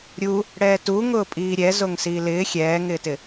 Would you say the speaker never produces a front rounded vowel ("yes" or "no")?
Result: yes